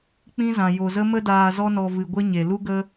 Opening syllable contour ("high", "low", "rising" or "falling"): high